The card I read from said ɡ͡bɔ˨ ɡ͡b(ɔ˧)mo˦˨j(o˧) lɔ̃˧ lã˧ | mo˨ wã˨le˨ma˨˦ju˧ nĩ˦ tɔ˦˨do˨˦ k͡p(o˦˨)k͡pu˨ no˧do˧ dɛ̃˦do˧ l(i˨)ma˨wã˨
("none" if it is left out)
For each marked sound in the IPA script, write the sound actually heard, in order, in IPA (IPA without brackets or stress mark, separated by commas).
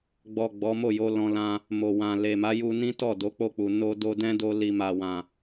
ɔ˨˦, o˧, o˦˨, i˨